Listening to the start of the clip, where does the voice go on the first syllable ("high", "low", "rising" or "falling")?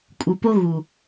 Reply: low